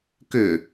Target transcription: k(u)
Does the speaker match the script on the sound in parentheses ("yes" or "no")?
no